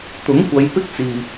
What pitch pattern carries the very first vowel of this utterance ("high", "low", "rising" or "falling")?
rising